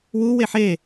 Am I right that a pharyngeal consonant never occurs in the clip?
no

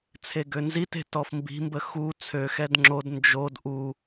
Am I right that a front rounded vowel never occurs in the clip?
no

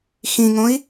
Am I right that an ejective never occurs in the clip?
yes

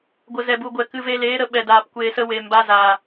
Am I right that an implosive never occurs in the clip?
no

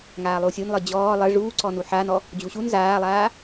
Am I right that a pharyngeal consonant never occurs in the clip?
no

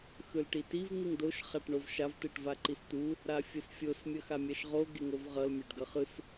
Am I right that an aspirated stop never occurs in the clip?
yes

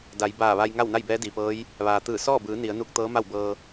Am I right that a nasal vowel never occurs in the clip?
yes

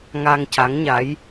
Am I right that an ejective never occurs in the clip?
yes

